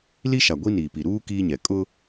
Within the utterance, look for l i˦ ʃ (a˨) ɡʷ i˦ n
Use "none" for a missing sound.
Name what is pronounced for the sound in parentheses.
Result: a˨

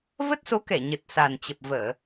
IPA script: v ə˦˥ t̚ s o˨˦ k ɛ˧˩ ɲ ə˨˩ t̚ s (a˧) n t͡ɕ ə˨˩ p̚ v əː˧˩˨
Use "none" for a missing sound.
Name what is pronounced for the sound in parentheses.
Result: a˨˩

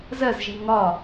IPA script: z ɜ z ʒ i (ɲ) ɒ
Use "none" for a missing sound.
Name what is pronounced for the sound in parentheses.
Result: ŋ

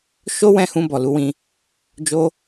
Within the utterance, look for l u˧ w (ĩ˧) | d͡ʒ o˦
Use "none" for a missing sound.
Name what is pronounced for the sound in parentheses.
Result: ĩ˧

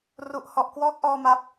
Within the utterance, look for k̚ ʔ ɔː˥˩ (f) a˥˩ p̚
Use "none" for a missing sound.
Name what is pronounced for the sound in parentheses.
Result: m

